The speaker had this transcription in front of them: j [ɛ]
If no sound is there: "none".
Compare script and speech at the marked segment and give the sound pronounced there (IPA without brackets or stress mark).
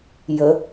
ə